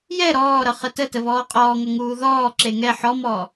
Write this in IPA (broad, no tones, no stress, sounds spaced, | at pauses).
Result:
j ɛ ɾ ɔː ɾ ʌ χ ə t ə t ə β ɔː qʼ ɔː ŋ ʌ ŋ uː ð ɔː ǁ e ŋ ɛ ħ ɔ m ɔː